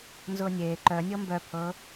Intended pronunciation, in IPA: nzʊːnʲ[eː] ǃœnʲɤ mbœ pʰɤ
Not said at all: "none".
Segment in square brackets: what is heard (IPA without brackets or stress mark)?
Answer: eː